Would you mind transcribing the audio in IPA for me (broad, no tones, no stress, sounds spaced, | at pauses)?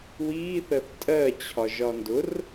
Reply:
w iː θ ɜ θ tʼ ɜ t͡ɕʰ ɒ ʒ ɒ n d ʊ r